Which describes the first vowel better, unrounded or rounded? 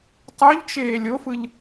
rounded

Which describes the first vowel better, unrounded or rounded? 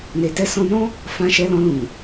unrounded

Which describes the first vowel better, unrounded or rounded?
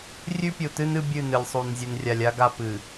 rounded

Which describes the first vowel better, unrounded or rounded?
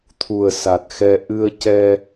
rounded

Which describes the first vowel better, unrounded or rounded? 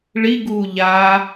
unrounded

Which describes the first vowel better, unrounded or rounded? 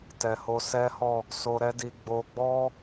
unrounded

